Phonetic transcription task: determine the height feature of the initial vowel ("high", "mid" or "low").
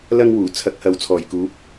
low